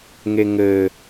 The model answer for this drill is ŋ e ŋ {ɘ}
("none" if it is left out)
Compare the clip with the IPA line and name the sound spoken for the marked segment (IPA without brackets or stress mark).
ɘ